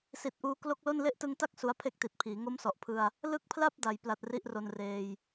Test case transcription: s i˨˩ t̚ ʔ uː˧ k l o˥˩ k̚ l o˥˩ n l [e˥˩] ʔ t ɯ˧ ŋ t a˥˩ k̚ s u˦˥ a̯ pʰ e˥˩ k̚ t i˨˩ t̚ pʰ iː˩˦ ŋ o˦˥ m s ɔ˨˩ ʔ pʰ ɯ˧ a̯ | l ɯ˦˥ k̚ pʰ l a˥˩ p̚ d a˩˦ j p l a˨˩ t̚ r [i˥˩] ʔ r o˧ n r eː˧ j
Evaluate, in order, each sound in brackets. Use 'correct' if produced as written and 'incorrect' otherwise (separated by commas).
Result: correct, correct